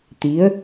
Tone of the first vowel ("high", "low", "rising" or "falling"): rising